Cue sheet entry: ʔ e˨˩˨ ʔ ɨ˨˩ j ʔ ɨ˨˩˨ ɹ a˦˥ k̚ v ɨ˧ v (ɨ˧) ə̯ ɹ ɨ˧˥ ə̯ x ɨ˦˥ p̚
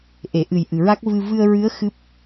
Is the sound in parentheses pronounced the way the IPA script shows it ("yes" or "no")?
yes